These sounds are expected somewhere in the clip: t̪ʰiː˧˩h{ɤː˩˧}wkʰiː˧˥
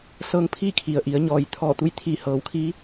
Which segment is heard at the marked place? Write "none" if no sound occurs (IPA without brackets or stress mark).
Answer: ɤː˩˧